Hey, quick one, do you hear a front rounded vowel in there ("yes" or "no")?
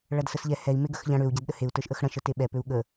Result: yes